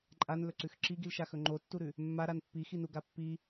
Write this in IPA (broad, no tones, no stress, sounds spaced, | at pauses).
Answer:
ǃʼ a n l ɵ ǀ ʉ x ǁ i ɡ i l ʃ a x ɵ ŋ͡ǃ o tː u ɾ ʉ | mː a ɾ a n pː i x i n u ɡ a pː i